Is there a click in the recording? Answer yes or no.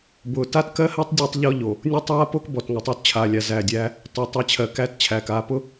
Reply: no